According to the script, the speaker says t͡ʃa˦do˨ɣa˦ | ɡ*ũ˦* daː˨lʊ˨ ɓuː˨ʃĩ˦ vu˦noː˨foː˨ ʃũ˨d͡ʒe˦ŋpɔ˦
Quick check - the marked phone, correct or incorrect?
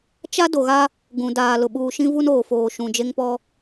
incorrect